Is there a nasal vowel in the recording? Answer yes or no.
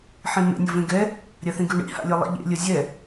yes